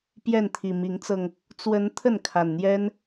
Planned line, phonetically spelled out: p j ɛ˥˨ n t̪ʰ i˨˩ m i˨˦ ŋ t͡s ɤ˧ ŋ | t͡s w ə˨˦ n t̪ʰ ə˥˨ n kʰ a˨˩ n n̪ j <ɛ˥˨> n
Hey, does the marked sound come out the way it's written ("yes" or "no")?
no